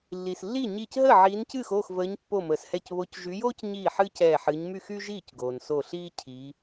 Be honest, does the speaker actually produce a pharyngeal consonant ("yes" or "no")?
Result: yes